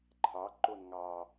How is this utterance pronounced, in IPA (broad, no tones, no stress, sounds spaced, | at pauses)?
ǃʰ ɑ ǃ o n ŋ ɑ